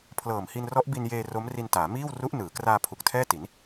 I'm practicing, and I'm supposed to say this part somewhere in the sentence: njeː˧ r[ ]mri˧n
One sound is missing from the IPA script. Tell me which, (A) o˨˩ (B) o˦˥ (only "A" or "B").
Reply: B